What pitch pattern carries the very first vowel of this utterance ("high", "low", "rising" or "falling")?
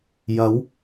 rising